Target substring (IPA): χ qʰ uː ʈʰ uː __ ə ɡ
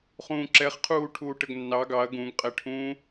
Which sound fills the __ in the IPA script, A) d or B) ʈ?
B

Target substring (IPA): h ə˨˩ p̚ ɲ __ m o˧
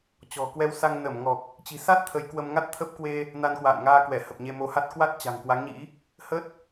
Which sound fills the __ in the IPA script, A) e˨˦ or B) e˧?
B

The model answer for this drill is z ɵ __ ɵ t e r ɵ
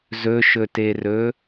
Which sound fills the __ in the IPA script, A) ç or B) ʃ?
B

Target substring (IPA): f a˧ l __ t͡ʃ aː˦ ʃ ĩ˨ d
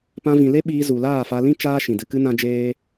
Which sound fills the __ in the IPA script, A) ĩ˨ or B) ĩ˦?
B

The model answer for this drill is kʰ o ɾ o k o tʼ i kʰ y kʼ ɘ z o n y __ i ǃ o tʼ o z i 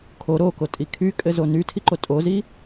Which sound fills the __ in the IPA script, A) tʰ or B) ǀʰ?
A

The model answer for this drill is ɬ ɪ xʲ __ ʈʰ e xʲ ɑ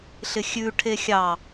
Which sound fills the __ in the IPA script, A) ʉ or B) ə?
A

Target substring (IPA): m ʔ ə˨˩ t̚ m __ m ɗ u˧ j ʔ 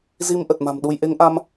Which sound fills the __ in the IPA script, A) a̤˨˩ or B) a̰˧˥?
A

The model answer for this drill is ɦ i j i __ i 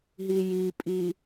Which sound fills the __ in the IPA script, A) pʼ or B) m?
A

